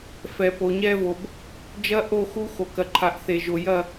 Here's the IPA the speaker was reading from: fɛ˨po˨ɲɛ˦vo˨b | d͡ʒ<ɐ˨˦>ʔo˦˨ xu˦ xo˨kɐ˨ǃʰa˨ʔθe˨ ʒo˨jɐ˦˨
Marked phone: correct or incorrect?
incorrect: ɐ˦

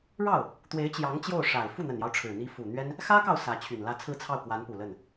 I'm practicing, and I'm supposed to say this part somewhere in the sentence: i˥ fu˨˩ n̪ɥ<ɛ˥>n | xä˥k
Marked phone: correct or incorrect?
correct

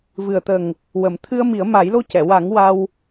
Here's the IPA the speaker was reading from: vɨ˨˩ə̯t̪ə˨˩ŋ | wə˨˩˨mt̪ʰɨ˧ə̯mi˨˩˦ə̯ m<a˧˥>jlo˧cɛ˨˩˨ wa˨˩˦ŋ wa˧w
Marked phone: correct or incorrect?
incorrect: a˨˩˦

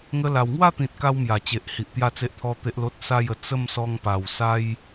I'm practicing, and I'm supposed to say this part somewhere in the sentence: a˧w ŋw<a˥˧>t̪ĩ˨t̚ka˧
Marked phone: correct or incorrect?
correct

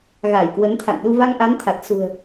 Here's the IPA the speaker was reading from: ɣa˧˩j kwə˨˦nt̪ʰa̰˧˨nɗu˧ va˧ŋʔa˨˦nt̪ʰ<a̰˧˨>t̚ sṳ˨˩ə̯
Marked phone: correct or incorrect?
incorrect: a˨˩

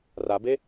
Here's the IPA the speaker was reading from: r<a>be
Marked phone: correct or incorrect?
correct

